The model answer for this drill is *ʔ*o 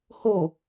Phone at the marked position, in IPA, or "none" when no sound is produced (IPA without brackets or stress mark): h